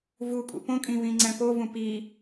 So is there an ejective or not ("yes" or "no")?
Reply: yes